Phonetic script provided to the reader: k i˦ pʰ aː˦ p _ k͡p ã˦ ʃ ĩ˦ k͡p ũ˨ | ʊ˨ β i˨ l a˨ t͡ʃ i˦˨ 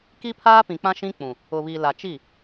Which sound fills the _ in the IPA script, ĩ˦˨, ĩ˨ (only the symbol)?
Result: ĩ˨